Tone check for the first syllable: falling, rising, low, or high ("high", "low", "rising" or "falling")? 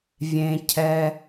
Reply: low